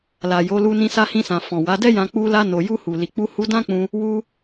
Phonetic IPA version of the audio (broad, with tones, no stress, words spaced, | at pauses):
la˨jo˨˦lu˧ nĩ˧sa˧hĩ˧sã˨ fɔ̃˨wa˨˦dɛ˦jã˧ k͡pu˧la˧ no˨ju˧hu˨ li˨k͡pu˧ hu˧dã˦k͡pũ˧ | wu˧